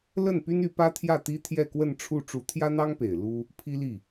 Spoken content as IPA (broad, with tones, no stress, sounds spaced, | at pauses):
l ə˥˩ n p y˥ n y˧˥ p ä˥ t̪ʰ j ä˥˩ t̪ i˥ t̪ʰ j ɛ˥˧ k w ə˥˧ n ʈ͡ʂʰ u˥˩ ʈ͡ʂ u˧˥ t̪ʰ j ä˥ n̪ ɑ˥ ŋ p e˨˩ ɪ̯ l u˥ | pʰ i˥ l i˥˩